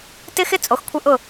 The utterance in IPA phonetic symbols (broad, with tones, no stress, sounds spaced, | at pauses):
t ɪ˦ x ɪ˦ t͡sʼ o˨ x kʷʰ ɪ˦ ʔ ʊ˦˨